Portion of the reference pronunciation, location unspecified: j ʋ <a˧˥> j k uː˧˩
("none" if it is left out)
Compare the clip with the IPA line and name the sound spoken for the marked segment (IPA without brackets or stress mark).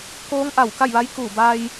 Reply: a˧˥